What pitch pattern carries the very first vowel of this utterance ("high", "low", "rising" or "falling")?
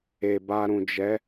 low